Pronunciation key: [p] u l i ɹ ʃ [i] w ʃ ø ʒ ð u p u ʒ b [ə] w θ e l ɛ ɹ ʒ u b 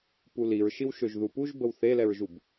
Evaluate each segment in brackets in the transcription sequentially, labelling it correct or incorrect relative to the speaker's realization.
correct, correct, correct

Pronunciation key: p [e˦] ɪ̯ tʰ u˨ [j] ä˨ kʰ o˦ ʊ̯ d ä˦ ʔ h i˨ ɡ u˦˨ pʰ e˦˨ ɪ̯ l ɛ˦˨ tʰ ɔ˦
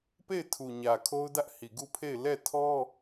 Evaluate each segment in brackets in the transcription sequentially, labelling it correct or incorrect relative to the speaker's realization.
incorrect: e˦˨, incorrect: ɲ

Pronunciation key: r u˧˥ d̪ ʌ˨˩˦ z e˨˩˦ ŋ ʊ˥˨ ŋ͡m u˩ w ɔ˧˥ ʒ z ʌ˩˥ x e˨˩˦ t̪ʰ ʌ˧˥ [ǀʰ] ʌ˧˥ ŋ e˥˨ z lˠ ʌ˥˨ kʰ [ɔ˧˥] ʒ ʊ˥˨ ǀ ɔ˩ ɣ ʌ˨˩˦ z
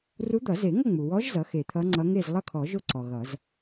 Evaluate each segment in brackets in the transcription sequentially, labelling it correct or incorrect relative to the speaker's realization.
incorrect: ŋ͡ǀ, incorrect: ɔ˨˩˦

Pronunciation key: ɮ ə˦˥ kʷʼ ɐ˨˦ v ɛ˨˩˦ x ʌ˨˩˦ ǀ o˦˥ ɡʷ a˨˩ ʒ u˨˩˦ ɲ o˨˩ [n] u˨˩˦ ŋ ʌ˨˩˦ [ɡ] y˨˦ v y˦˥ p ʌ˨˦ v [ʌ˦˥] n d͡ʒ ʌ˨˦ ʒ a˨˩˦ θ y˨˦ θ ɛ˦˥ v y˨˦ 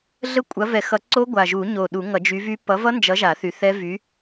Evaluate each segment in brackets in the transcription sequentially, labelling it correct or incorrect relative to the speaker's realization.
incorrect: ɗ, incorrect: d͡ʒ, correct

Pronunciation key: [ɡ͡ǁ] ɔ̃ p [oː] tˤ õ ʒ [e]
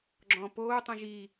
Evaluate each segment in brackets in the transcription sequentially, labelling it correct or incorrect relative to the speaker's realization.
correct, correct, incorrect: i

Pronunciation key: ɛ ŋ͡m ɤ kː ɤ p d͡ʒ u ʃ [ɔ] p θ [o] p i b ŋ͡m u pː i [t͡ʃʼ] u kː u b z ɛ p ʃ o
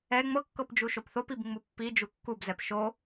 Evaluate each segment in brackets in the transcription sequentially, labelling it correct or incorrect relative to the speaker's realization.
incorrect: o, correct, incorrect: d͡ʒ

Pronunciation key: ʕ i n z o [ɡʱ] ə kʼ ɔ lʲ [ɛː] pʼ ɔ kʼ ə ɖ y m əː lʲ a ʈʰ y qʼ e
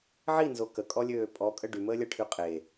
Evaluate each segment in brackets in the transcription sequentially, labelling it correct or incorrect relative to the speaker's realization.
incorrect: k, incorrect: øː

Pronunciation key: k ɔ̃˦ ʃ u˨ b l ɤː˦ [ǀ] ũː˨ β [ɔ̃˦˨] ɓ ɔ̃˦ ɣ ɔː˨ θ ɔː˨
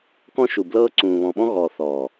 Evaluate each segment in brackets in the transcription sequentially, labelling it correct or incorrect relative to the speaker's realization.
correct, incorrect: ɔ̃˨

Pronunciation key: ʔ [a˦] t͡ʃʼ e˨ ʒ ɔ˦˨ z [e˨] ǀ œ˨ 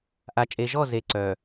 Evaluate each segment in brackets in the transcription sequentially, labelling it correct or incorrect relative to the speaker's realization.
incorrect: a˨, correct

